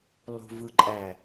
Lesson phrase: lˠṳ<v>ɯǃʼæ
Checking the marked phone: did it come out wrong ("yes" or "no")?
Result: no